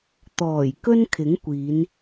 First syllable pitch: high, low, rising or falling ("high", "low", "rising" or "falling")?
low